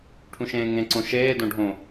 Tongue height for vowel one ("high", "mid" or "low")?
high